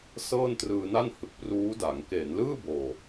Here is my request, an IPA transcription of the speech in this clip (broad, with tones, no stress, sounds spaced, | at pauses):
s ɤː˥˩ n t r ɯː˧ n a˥˩ n h ɯ˨˩ k̚ p r uː˦˥ d a˩˦ ŋ k eː˩˦ n l ɯː˥˩ b oː˨˩